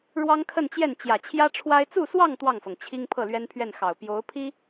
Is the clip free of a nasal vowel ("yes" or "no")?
yes